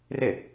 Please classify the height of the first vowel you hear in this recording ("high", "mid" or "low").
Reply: high